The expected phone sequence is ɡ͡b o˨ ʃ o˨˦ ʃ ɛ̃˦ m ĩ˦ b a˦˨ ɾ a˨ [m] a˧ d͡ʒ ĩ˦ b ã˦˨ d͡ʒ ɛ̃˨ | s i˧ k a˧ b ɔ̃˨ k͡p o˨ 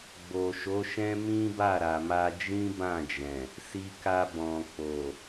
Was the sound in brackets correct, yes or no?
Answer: yes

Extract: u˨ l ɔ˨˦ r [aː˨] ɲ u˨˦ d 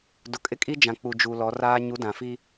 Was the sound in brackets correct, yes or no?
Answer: no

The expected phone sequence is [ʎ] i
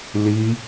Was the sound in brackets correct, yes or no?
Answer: no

